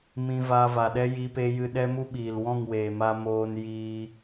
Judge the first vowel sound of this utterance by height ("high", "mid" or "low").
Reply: high